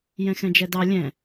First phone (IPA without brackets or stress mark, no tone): j